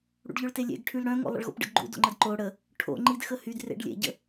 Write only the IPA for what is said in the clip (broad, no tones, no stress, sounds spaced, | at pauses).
ɽ ṵ ɖ ʎ œ ɭ t e lʲ ḛ ɡ ʈʰ y l ɽ œ̃ ŋ o̰ lˠ ə̰ ɭ ɣ o̰ p ɖ ə̰ ɡ ɡ͡ǃ ṵ d o̰ ŋ͡ǃ ə d ǃ o ɽ ə | ʈʰ o̰ ŋ͡ǃ i d x ə h y d r ḛ ɖ lʲ ḛ ɟ ə̰